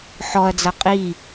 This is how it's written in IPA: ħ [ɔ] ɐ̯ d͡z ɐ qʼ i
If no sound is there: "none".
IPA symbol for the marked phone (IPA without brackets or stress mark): ɔ